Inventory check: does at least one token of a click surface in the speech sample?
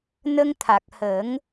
no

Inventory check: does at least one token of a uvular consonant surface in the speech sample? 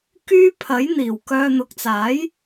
no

